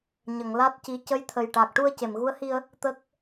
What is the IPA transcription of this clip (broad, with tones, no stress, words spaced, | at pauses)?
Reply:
ɲə˨˩˨ŋ la˦˥t̚ci˧˥ cə˧˥jt̪ʰə˨˩jʈa˨˩k̚ ʈu˧ə̯ce˨˩˨mɣu˧˥ə̯hi˧ə̯ | t̪ə˦˥k̚